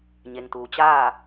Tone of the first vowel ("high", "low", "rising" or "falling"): low